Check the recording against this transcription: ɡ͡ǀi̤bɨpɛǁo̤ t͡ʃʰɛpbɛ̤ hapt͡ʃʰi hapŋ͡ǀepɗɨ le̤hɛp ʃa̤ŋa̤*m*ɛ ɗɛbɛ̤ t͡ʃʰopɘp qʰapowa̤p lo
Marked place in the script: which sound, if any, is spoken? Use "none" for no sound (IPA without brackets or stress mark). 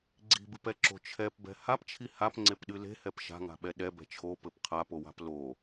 ɓ